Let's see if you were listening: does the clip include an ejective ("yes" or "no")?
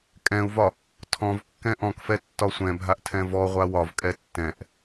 yes